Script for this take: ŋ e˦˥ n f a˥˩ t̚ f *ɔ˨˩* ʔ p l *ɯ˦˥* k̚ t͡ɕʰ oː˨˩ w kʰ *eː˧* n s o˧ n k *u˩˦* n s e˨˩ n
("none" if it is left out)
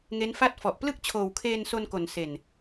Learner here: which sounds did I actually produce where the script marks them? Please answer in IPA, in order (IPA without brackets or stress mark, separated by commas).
ɔ˨˩, ɯ˥˩, eː˧, o˩˦